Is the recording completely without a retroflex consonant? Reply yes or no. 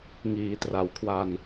yes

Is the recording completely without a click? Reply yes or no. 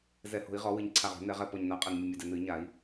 no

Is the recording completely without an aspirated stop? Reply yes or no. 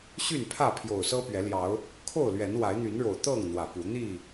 no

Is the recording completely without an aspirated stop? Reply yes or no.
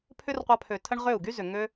no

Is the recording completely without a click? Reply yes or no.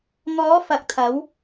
yes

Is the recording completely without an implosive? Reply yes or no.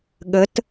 no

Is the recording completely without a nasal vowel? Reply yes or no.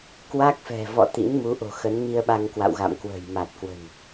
yes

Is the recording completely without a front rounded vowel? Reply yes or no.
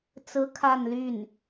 no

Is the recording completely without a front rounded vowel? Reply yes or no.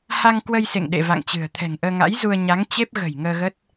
yes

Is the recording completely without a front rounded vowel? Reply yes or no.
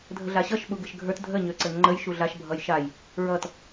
no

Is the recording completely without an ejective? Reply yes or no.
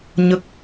yes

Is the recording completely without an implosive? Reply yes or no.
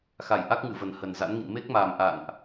yes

